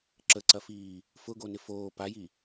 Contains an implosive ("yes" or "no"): no